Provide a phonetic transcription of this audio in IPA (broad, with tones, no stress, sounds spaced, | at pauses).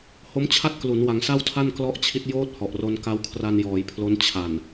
h o˦˥ m t͡ɕʰ a˥˩ t̚ k l u˩˦ n w a˩˦ ŋ s a˥˩ w tʰ a˥˩ n k l ɔ˦˥ ʔ t͡ɕʰ i˦˥ t̚ j oː˦˥ t̚ h ɔ˨˩ ʔ r o˧ n k a˦˥ w kʰ r a˧ n j ɔː˩˦ j pʰ l o˦˥ n t͡ɕʰ a˨˩ n